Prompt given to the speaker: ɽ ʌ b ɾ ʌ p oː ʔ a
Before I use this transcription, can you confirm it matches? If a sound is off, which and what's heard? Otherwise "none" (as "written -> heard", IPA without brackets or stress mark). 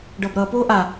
ɽ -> ɖ